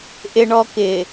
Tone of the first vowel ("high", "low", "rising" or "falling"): low